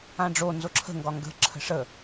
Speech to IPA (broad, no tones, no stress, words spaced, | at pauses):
ãɖ͡ʐo nzoǁʰə̤ ŋɡɒŋɡə̤ ǁʰə̤ʂə